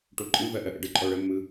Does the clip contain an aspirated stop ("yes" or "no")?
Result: no